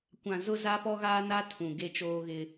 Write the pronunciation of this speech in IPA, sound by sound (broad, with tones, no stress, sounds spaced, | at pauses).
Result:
kʷ ã˨ z ʊ˦ z a˦ p ɔ˦ ɣ aː˦ n a˦ tʰ ũ˨ ɡ e˦ t͡ʃ oː˦ ɣ ɪ˦